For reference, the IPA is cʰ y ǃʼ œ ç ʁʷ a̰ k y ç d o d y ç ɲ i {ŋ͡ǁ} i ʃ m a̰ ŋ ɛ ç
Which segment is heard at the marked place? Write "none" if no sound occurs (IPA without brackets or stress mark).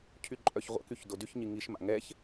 ŋ